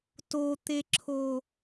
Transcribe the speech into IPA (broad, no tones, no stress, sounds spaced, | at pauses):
t o t̪ e ǁʰ o